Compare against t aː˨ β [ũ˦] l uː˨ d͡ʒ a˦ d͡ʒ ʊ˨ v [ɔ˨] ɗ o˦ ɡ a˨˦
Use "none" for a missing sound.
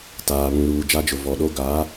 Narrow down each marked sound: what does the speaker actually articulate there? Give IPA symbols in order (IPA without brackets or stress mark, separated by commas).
ũ˨, ɔ˨